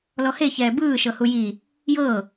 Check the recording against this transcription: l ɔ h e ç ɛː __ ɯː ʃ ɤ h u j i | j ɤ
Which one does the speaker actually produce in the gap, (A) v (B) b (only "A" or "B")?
B